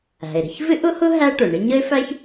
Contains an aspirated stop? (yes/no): no